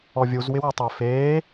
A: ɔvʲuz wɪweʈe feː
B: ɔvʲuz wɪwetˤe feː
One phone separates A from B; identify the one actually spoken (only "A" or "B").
B